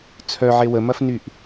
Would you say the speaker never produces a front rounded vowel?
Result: no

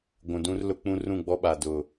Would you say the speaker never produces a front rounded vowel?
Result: yes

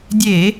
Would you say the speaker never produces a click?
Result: yes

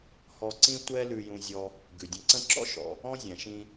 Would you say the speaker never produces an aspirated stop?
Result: yes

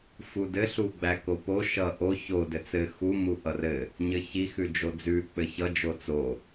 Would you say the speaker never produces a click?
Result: yes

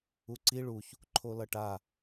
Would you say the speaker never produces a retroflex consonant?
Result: no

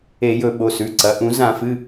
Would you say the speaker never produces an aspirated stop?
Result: yes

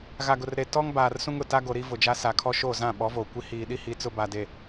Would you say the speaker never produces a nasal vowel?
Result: no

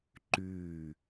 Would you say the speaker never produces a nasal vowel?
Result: yes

